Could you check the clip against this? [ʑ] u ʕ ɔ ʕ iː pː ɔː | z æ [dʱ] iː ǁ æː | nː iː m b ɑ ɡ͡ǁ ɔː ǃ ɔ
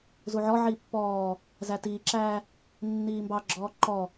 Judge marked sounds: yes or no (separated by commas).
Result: no, no